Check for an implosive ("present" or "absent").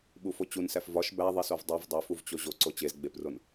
present